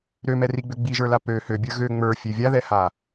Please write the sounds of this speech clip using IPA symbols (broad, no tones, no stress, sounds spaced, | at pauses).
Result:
ɾ ø m ɛ r i ɡ͡b ø ɡ͡b i ʒ ə˞ l a p ø h ø bʲ ə˞ ɣ ø ŋ͡m ə˞ fʲ ø vʲ a ð ɛ h a